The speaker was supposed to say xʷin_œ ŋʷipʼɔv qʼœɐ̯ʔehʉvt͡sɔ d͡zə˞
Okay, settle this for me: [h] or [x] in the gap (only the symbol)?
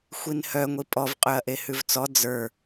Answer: h